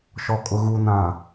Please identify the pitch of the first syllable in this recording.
low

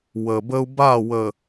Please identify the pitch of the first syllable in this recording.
low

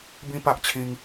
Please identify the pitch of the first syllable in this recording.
high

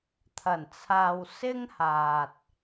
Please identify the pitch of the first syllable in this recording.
low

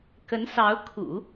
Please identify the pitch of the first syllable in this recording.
rising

